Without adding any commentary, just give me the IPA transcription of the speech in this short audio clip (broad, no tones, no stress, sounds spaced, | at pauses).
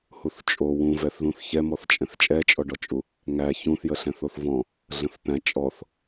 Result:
h u θ t͡ʃʼ o w ũ v ɛ θ ð ũ θ ç ɛ m ɔ θ t͡ʃʼ ɛ̃ θ t͡ʃʼ ɛ t͡ʃʼ ɔ ɖ ɔ t͡ʃʼ u | ŋ æ ç ũ θ j ə ɬ ɛ̃ θ o θ v ɔ̃ | ɮ ə̃ θ t̪ æ̃ t͡ʃʼ ɔ θ